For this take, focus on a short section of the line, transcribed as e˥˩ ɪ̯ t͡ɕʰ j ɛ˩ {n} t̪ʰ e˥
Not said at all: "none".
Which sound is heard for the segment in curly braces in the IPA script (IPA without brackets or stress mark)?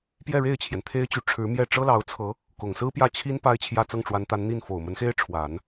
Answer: n